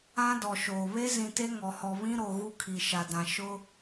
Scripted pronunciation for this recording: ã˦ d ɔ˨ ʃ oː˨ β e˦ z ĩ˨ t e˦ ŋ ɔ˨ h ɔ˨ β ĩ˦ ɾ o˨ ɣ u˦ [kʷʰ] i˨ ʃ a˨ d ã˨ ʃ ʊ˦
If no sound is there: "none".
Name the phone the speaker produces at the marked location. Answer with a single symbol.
kʰ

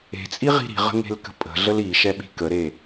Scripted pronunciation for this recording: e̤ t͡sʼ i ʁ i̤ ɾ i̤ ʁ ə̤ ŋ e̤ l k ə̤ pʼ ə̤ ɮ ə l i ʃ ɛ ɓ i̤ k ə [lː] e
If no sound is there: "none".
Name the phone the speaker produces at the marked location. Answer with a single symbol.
ɾ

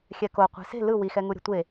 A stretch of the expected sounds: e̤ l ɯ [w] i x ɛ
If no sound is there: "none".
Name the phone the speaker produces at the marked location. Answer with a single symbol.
w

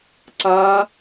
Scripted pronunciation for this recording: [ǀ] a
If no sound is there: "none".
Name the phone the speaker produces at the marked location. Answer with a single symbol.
ǀ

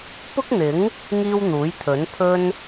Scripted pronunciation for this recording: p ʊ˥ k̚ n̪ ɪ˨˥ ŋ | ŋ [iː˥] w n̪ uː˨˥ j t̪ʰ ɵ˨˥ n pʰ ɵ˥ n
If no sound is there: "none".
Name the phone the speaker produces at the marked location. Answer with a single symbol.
iː˥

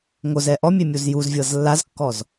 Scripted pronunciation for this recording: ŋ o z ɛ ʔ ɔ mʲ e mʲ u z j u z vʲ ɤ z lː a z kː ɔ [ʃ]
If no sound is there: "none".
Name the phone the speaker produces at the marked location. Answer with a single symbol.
z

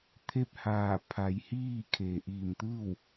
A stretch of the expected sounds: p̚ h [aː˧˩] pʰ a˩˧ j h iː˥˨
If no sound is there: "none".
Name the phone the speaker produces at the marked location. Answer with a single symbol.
aː˧˩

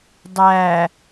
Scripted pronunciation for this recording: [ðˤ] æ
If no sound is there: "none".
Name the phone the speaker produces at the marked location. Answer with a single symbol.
dˤ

